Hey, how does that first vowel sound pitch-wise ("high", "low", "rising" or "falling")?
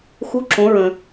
rising